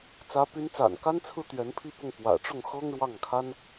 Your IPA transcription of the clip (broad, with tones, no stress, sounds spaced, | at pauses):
t͡s ä˧˥ p y˧˥ n t͡s a̰˨˩ n k a˥ n t͡sʰ ɹ̩˥ t̪ ɥ ɛ˧˥ n pʰ i˥˧ p ʊ˥˩ ŋ p w ä̰˨˩ ʈ͡ʂ ʊ˥˩ ŋ x ɤ˥ ŋ ɻ w ɑ˥˩ ŋ kʰ a˥ n